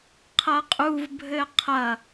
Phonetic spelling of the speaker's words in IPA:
qʰ ɐ qʼ u v bʱ ɘ qʰ ɐ

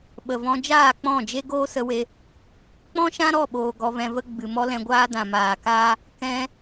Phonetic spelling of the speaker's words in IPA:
ɓ ə˨ v ɔ̃˧ d͡ʒ aː˦˨ k͡p ɔ̃˦˨ d͡ʒ e˦ ɡ oː˦ s ə˧ w e˧ | k͡p ɔ̃˦ ʃ ã˦ ɾ ɔ˦˨ ɓ oː˨ ɡ ɔ˧ v ɛ̃˧ v ə˦ ɡ͡b ɨ˨ m ɔ˦ l ɛ̃˧ ɡʷ aː˦ d ã˨ m aː˨ k aː˦ | k ɛ̃˧

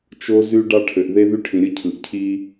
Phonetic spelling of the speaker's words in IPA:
t͡ʃ o˦ z y˦ ɖ ɑ˦ ʈʰ ø˨ ʔ ð e˦ ð y˦ ʈʰ ĩ˨ ɾʲ ɯ˦ cʰ ɯ˨ ʔ cʰ i˦

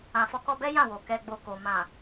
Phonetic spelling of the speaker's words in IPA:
ã˨ f ɔ˨˦ k ɔ˧ b ɛ˦ j ã˦˨ w o˨ k ɛ˨ ɡ͡b o˨ k o˨ m ã˨

